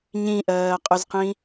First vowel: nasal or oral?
nasal